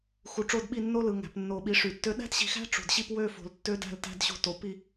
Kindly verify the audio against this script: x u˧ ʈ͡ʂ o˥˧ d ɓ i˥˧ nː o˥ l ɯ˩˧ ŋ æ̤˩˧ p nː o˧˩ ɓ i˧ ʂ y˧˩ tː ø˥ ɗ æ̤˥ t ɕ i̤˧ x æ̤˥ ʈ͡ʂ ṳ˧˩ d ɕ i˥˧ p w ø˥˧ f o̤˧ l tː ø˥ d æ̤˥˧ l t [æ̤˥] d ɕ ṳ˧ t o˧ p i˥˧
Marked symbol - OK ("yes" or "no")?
yes